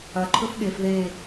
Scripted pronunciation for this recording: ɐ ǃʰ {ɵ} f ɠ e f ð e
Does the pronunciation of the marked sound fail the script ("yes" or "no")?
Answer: no